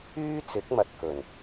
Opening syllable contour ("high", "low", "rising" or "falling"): high